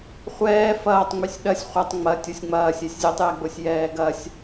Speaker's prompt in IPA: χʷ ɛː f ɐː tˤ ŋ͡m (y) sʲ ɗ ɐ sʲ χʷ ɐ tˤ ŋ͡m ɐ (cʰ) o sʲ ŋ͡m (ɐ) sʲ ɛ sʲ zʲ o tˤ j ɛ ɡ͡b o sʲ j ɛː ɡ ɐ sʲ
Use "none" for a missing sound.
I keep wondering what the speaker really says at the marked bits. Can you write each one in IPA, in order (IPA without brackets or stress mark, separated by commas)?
y, tʲ, ɐː